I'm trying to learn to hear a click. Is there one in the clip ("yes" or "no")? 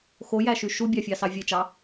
no